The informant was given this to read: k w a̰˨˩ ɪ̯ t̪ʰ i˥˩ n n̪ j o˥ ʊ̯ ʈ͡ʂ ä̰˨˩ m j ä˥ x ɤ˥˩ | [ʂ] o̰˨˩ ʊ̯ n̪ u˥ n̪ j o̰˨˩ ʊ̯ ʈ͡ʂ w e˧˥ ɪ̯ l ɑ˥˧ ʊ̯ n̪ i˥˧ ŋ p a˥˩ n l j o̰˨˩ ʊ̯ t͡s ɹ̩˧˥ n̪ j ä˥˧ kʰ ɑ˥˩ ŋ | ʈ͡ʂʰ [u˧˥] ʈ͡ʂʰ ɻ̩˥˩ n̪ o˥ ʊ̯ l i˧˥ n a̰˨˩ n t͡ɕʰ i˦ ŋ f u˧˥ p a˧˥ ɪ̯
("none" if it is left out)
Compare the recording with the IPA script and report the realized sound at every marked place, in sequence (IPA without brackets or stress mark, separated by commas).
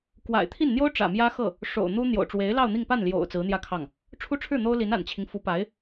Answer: ʂ, u˥